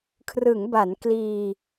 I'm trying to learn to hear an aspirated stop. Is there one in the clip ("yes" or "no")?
yes